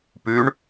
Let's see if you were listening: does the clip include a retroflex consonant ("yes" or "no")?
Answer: yes